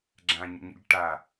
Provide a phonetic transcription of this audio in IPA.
ɡ͡ǁ ã ɲ ə̰ ɲ ə̰ ʎ ʈ a

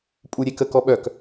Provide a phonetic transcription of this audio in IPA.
pʼ u ɾʲ e k ə k ɔ ɓ œ k

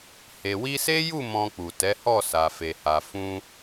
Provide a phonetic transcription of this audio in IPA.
h e˨ w i˧ s e˦ j u˦˨ m ɔ̃˧ k͡p u˨ t ɛ˨˦ h ɔ˦˨ s a˨ f e˨ h a˨ f ũ˧

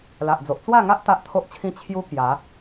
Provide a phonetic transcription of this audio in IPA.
l a˨ ʔ d͡z o˨ ʔ t͡s w a˥˧ ŋ a˦ ʔ t̪ a˦ ʔ t̪ʰ o˦ ʔ t͡ɕʰ ĩ˦ t͡ɕʰ j u˦ k j a˨˦

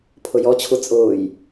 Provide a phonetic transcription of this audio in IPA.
pʰ ʊ j ɔ t͡ɕʰ u t͡sʼ ʊː j

